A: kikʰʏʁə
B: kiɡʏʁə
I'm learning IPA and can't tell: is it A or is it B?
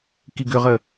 B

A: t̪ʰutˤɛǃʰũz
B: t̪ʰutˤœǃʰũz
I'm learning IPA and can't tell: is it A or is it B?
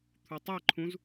A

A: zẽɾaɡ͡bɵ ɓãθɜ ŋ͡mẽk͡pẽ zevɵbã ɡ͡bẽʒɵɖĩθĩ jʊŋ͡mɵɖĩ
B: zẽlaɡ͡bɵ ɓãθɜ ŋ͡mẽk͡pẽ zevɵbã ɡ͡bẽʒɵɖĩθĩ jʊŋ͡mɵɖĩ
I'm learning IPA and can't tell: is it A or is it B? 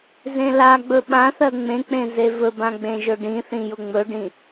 B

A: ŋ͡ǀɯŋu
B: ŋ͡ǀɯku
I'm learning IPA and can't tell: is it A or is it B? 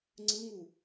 A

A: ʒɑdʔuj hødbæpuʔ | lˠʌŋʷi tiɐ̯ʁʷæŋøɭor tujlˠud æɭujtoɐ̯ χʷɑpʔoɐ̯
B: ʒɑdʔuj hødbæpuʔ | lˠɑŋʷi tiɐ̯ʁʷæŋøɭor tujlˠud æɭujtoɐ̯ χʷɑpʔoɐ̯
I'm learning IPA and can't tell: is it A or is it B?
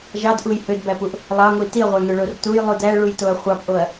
B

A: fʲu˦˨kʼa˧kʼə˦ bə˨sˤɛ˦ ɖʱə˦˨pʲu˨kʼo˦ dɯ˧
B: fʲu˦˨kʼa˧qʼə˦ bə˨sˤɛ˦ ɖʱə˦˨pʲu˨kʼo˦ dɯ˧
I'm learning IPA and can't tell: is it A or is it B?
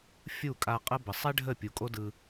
B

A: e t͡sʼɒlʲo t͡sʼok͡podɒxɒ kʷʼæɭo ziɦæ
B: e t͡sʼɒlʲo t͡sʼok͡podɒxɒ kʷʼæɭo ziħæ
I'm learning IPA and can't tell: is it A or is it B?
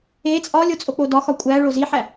B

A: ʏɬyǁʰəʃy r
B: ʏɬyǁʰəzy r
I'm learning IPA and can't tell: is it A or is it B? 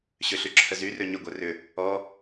B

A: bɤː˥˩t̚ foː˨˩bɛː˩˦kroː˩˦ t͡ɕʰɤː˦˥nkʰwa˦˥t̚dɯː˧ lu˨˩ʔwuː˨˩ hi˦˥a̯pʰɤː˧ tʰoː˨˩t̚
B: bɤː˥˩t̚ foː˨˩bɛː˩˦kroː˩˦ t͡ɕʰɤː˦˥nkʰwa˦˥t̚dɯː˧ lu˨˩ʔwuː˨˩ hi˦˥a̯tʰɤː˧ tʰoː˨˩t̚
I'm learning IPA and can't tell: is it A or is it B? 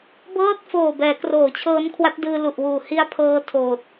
A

